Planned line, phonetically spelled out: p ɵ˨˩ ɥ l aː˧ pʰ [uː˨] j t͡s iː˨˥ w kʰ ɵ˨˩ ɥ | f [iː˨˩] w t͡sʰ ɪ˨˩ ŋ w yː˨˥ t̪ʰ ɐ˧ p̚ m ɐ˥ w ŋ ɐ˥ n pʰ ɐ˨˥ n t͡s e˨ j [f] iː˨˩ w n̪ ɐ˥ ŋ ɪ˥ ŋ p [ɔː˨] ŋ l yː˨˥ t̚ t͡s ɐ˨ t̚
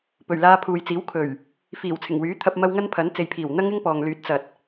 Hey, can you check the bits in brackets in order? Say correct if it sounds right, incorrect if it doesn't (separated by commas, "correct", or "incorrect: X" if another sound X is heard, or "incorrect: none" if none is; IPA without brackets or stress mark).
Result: correct, correct, incorrect: pʰ, correct